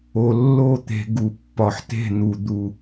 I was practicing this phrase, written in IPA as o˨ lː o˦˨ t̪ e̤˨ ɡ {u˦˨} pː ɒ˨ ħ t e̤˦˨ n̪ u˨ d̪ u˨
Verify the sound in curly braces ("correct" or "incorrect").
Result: incorrect